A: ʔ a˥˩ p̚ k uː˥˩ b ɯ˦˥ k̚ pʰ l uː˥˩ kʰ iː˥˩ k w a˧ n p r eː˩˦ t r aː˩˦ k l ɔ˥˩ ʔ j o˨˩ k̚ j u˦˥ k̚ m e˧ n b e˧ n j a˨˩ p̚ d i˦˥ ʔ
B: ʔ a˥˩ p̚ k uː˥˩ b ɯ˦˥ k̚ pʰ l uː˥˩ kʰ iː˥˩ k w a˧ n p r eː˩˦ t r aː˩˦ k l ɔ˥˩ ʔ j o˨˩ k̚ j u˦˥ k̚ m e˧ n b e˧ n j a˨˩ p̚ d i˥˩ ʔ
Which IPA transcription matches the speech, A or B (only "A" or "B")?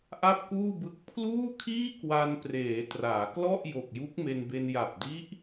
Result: A